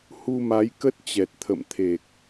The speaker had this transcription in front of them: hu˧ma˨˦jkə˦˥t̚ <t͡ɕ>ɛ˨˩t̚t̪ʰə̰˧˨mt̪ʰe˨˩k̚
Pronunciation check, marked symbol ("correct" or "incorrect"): correct